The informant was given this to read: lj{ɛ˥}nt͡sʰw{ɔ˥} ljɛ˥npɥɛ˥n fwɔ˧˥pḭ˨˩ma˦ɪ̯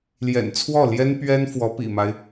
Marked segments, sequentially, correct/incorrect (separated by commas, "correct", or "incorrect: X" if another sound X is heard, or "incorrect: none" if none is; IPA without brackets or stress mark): incorrect: ɛ̰˨˩, incorrect: ɔ˥˩